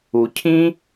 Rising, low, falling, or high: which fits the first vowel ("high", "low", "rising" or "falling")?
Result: low